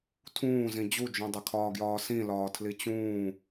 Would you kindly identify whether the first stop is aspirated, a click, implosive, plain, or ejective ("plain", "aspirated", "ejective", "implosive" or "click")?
aspirated